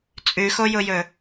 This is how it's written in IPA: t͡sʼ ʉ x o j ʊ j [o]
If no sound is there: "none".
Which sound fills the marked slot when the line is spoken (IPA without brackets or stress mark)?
ɵ